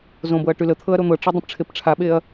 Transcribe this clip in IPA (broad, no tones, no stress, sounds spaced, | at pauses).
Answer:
z õ b ɤ ɐ̯ ʈ y l ə t̪ʰ ɤ ɐ̯ ɾ o n̪ ɤ ʈ͡ʂ e dˤ ə̃ p ʈ͡ʂʰ e p ʈ͡ʂʰ a ɓ e ɐ̯